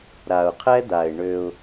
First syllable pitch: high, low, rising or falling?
low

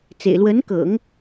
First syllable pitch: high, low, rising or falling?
low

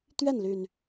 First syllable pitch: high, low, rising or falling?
falling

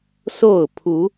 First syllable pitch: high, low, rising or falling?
falling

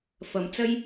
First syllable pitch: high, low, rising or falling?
low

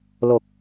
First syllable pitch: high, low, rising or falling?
low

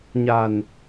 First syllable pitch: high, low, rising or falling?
low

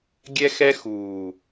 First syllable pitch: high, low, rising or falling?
high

